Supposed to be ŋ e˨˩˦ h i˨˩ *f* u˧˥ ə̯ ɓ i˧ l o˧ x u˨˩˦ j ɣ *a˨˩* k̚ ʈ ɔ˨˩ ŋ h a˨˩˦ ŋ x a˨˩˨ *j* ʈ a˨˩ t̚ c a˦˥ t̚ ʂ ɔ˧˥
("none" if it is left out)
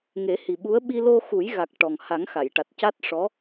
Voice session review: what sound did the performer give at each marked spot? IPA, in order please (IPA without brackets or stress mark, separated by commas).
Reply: ɓ, a˨˩, j